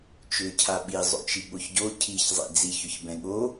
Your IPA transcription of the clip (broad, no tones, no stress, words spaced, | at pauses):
t͡ʃʏcʰa ɓizˤo̰t͡ʃi ɠoçɟo cʰiç zˤḭd͡ziçʏçbɛ̃ ɠo